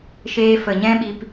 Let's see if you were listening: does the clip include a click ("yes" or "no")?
no